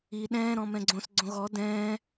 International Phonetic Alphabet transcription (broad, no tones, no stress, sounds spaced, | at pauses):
i ɗ ɛ̃ː ɾ ɔ̃ m ɛ̃ ɡ͡ǀ õ s ɡ͡ǀ õ ɣ ɔ d ɛ̃ː